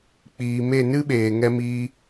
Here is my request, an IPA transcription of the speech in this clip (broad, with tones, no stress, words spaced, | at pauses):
k͡piː˨me˦˨ nɨ˦ɓeː˨ ŋɛ˦ miː˦